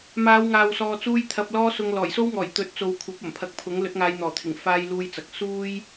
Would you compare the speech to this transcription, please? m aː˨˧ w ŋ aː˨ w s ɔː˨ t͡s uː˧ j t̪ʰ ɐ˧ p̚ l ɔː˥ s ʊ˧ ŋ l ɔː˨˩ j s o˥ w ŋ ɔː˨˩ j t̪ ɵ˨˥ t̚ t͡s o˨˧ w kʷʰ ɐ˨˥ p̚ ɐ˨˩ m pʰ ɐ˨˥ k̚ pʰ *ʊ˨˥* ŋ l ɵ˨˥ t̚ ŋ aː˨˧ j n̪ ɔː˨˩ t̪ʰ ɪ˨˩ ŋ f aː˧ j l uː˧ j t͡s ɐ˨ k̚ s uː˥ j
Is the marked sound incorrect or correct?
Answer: correct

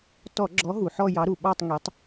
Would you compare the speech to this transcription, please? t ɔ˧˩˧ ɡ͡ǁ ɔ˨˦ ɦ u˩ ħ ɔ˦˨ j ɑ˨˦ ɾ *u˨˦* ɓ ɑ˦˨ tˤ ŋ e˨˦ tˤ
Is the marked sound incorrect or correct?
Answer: incorrect: u˩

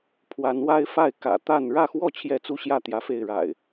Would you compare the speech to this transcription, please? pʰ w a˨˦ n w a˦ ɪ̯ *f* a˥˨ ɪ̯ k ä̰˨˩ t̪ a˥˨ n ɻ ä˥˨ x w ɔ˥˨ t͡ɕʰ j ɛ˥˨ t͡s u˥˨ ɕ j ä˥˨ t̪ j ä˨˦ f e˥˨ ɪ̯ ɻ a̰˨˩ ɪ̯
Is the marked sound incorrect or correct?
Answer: correct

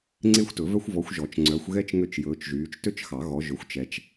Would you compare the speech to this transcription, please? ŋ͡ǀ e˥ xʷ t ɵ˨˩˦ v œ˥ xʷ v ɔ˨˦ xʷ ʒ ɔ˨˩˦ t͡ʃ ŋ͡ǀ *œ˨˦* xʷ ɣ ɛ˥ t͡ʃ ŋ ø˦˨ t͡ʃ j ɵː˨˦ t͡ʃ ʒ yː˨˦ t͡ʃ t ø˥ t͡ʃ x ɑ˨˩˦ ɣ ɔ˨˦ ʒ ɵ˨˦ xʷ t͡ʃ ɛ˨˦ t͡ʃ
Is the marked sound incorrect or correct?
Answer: correct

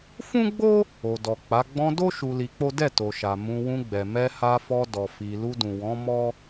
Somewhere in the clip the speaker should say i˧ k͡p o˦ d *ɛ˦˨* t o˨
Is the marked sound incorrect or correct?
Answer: correct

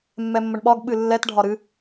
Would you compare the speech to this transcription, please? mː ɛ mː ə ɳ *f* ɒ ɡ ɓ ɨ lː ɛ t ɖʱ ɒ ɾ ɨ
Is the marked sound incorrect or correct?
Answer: incorrect: ɓ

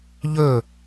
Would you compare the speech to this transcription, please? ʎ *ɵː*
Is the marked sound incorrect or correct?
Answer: correct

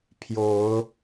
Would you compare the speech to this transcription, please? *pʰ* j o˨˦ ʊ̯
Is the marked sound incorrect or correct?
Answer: correct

